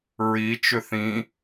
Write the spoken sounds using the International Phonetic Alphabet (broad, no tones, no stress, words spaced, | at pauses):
ɹi t͡ʃʏθĩ